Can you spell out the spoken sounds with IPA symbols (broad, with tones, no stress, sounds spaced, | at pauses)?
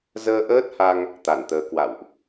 z əː˧ ʔ əː˦˥ t̚ h a˧ ŋ | t̪ a˧˩ n t̪ əː˨˦ k w a̰˧˨ w ʔ